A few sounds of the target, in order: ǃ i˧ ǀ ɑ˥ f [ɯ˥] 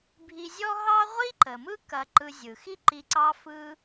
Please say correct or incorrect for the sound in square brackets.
correct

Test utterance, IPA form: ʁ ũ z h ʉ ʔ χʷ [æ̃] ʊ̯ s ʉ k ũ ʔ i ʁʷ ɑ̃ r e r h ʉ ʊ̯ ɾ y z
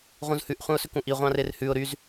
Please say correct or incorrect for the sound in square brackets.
correct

